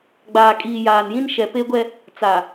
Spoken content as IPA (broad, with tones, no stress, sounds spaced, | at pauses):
ɡ͡b aː˨ kʼ iː˨ j aː˨ n j ĩ˦ n ʃ ɛ˨ p e˦ ɡʷ ɛ˦ | t͡s a˨